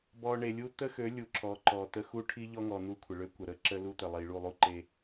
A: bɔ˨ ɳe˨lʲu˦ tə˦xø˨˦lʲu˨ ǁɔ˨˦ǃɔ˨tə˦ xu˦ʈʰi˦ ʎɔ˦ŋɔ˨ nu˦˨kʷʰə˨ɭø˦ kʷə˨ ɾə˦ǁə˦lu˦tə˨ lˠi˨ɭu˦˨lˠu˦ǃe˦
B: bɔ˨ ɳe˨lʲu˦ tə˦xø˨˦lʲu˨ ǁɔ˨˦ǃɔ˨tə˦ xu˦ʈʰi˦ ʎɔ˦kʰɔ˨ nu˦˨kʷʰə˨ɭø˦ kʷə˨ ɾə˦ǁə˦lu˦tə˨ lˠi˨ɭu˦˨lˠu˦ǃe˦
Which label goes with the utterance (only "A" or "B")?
A